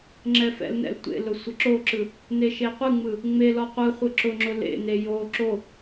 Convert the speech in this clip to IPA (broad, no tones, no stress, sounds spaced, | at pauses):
ŋ͡ǁ ɛ f ɛ̰ l n ɛ̰ l tʷ ḛ l ʊ sʷ ə ǁ o ǁ ɯ | n e ʃ e qʷ ɯ ŋ͡m ɯ | ŋ͡m e l ɔ qʷ ɯ χʷ ɯ ǁ ʊ ŋ͡ǁ ʊ l ḛ n e j o ǁ o